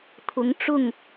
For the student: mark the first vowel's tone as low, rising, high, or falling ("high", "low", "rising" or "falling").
rising